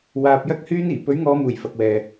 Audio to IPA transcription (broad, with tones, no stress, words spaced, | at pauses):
waː˧p̚ jɐ˥k̚hyː˥niː˨˩ pɵ˨˥ɥŋɔː˨˧muː˨˩j fɐ˨k̚wɛː˨